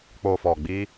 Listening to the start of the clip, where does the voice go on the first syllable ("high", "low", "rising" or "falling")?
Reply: low